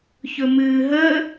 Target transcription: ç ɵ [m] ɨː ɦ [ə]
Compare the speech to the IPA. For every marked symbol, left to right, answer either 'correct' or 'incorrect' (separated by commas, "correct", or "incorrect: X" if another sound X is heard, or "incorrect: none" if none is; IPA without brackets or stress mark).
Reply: correct, correct